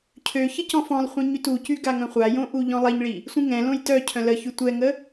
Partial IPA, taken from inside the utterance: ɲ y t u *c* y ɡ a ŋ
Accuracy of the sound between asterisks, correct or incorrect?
correct